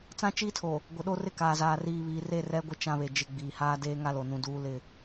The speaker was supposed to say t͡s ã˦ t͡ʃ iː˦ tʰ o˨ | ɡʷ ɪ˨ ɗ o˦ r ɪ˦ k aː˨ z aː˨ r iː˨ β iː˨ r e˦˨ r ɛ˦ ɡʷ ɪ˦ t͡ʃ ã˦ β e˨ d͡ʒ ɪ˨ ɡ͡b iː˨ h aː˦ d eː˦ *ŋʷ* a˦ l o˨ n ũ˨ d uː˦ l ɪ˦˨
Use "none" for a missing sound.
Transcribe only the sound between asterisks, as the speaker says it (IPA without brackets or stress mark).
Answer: ŋ